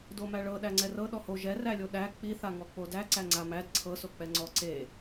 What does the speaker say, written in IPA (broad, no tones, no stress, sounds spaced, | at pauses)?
d o m æ ɭ ɤ ɗ æ ŋ͡ǀ ɛ r ɤ ɗ ɔ h o ʒ ɛ r æ lʲ o ɗ æ k͡p i θ a ŋ ɔ k͡p o d æ ǀ æ ŋ͡ǀ a m æ d ǀʰ ɤ s o k͡p ɛ ŋ͡ǀ ɔ ǀ e